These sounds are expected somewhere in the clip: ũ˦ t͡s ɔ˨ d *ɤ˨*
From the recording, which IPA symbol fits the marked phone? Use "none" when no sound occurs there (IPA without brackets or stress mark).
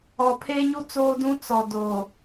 o˨